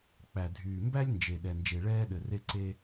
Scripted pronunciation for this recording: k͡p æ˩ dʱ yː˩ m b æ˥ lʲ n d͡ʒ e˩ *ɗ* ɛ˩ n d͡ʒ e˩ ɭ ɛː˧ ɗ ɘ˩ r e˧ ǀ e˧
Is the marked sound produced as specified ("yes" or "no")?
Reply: yes